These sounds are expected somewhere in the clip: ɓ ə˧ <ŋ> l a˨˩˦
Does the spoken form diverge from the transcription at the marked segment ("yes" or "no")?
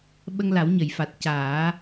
no